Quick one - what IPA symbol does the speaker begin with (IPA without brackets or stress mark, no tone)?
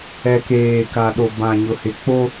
ɛ